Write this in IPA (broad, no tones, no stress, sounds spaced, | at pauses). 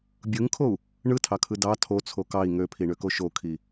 bʲ ɯ ŋ kʰ o u̯ | ɳ ɯ tʰ ɑ kʰ ɯ d ɑ tʰ o t͡sʰ o k ɑ i̯ ŋ ø pʰ i ɳ ø k o ʃ o kʰ i